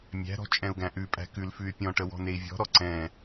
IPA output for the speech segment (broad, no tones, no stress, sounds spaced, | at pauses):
mʲ æ̤ ɾ ɔ̤ t͡ʃʼ ɛ̃ u̯ ɡ æ̃ ʔ ʉ pʼ æ̤ k ʉ l f ʉ y̯ pʲ ɔ̃ ʈ ə w ɔ̤ n e i̯ vʲ ɔ̤ ɾ ɔ ǀ ɛ̃